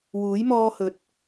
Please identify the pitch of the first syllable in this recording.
rising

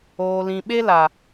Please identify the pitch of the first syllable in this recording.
low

